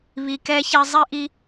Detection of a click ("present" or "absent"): absent